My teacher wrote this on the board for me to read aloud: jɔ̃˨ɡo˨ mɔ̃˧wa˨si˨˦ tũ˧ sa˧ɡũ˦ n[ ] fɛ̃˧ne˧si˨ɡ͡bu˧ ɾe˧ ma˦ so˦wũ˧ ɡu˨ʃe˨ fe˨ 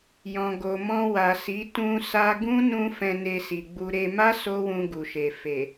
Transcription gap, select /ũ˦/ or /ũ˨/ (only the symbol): ũ˦